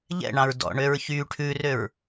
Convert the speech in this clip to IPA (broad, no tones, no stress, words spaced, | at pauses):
ʎɛ̰ɳɑ̃ɹ dɔ̰ɳøɹ çy ʈʰʉrøɹ